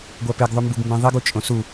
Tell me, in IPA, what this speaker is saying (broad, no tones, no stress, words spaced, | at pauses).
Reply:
ɡʷæpeɡ ðˤumbuɡmbẽðˤiɡ ut͡ʃʼõsu